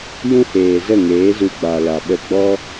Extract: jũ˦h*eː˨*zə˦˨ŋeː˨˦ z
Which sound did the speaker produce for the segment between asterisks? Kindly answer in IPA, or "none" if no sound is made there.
eː˨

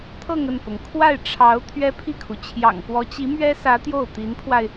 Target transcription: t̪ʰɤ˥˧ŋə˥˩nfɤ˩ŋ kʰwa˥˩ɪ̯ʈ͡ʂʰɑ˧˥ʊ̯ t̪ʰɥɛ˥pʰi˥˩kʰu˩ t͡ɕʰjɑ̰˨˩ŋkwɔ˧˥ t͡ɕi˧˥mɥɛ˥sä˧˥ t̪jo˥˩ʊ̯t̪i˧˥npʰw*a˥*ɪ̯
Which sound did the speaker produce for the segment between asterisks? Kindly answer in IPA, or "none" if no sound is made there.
a˧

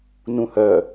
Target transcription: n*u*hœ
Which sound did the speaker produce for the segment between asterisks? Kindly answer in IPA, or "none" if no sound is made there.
ũ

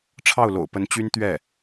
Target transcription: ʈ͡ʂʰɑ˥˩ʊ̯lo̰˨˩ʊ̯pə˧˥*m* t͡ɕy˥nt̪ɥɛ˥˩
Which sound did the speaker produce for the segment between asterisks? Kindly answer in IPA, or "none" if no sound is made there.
n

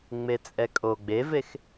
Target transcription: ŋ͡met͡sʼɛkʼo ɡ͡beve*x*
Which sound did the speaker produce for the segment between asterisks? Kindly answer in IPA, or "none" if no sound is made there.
x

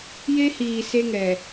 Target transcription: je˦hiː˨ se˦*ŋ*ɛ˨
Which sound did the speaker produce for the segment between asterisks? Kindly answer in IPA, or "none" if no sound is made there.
ŋ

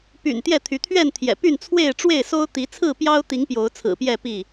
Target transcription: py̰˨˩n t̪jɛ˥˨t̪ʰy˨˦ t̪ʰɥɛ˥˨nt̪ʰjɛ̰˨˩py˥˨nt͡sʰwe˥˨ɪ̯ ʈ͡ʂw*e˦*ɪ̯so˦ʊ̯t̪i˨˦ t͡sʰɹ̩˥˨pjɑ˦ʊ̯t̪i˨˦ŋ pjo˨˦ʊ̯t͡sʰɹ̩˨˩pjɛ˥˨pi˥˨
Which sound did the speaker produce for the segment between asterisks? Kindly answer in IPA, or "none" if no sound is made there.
e˥˨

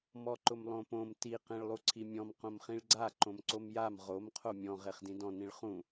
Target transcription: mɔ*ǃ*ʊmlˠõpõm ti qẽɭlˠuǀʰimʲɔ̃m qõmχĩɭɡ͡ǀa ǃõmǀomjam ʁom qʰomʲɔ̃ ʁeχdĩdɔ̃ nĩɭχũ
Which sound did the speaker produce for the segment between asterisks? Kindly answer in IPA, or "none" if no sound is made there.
ǃ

